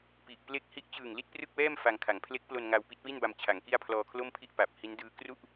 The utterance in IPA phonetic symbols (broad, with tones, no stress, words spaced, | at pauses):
pi˨˩ʔ ple˦˥k̚hi˦˥ʔ t͡ɕɯː˨˩ŋli˥˩t̚prɯ˥˩k̚wɛː˥˩m fa˧ŋkʰa˩˦ŋ pʰle˦˥k̚plo˧n ŋa˧wpi˦˥t̚wi˥˩nba˧m t͡ɕʰa˩˦ŋki˥˩a̯ pʰlɔː˧kʰlo˥˩mpʰi˥˩ʔ pa˨˩p̚ hi˦˥ndɯː˦˥ kru˥˩ʔ